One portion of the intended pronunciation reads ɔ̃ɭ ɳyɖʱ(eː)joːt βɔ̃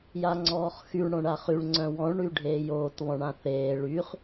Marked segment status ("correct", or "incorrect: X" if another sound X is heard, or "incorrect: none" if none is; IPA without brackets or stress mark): correct